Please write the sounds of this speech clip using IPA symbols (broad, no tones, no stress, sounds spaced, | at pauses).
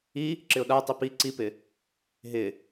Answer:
i | ǁ ɪ ʊ̯ ɗ a tˤ i p i ǀ i p ɪ | ɦ ɪ